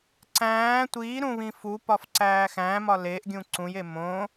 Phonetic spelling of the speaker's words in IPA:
ǀæ̃ː tʷiːɾũβĩ fupɒfǀæː xæ̃mɒ leʔɡʲũ ǀũje mõ

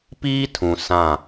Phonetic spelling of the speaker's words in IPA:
piː˦tʰũ˨ sã˦˨

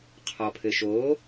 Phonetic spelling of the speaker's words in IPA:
qʰɔpʰɘʃo

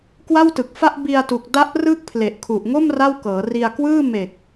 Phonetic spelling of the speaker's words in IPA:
kwa˥˩wtɯ˨˩k̚fa˥˩ʔ bi˧a̯tu˨˩k̚ da˦˥ʔ rɯ˦˥k̚pʰle˨˩ʔ kʰu˨˩ʔ ŋo˥˩m ra˥˩wkɤː˩˦ ri˧a̯kwɯː˥˩ me˨˩k̚

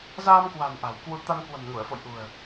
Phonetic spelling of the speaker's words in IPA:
zaː˧mkwa̤˨˩n ʔa̤˨˩wkwu˧ t̪a˧nkwə̤˨˩mŋu˧˩ə̯fo̰˧˨j ʔṳ˨˩ə̯

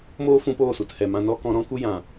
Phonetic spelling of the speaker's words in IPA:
moː˦fũ˧poː˦˨ su˨thɛ˨mã˧nɔ˦ kɔ̃˧ ɾɔ̃˦ku˦ jã˨

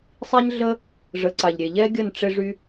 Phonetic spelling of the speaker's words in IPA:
sˤi˥ɲɮə˥ | ʐə˩˥ǀa˩ʎɾʲe˩ ʎɛ˥ɡʲə˥˩n ʈ͡ʂe˧ʐy˧

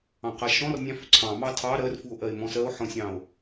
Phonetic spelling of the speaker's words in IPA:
ɑ̃qaʃɔ̃rnʲɑ̃ fʏǀʰɑ̃mɑ tʰɑ ɾɜrfuo̯ʔɜe̯mɔ̃ sɜo̯ħɔ̃sʲɑ̃o̯

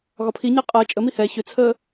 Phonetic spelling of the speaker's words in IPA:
ɣɒpʰiɲɛ qʼəː t͡ʃʼəmi hɛ çʏt͡sʰəː

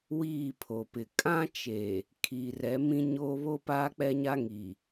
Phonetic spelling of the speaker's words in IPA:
wiː˦˨pʰo˨pɪ˨ kʼã˦t͡ʃe˨ | kʰi˨rɛ˨˦ mĩ˦ɲoː˦ βo˦paː˦k͡pɛ˦ɲa˦ ŋi˨

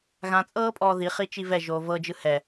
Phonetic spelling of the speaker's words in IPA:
ɣãt͡sʼɤːpʼɔː ðiχi t͡ʃivɛʒoː vɤd͡ʒɯ hɛ

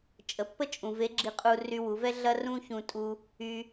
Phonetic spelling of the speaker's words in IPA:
t͡ʃʼə˩pːə˥t͡ʃʼũ˩ ve˧˥ɡ͡ǁi˧qʼu˧ ry˧wu˩˧vɛ˥ ɮɐ˥rũ˥çũ˧ tʼu˧ | y˩

